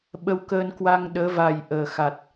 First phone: ɓ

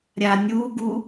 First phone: ɾʲ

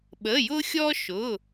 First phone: ɓ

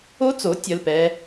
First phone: o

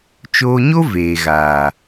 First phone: t͡ʃ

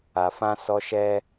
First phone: a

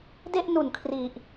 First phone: d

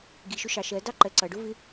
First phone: ɡ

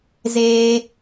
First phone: z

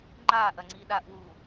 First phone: ŋ͡ǃ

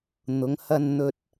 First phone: n̪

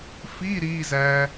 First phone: f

